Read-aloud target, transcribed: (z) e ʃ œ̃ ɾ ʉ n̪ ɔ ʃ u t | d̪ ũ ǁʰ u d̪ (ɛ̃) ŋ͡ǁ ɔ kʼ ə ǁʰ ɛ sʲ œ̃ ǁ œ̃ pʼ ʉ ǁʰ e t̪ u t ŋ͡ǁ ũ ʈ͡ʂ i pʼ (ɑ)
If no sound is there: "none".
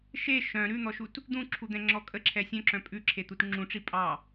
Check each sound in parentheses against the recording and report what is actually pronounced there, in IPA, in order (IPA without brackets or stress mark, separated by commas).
ʃ, ɛ̃, ɑ